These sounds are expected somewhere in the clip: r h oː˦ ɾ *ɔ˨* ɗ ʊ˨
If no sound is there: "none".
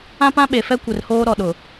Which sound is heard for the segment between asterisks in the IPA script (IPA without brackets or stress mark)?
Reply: ɔ˨